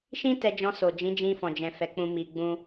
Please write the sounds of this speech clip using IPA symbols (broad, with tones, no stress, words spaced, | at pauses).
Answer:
ʃĩ˦ tɛ˧d͡ʒɔ̃˧so˨ d͡ʒĩ˨˦d͡ʒĩ˧fɔ̃˨d͡ʒɛ̃˨ fɛ˨˦k͡pũ˧ mi˧ɡ͡bũ˦